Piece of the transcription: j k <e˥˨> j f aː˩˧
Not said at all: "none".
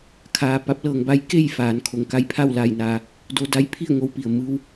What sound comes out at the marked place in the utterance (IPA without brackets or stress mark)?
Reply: e˥˨